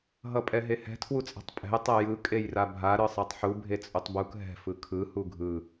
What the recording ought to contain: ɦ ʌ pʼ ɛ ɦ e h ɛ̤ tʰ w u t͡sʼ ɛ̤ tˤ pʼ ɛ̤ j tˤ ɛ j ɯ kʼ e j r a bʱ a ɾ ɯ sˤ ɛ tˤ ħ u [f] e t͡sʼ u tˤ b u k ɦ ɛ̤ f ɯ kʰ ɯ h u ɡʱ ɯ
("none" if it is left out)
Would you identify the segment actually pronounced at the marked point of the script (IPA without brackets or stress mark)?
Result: bʱ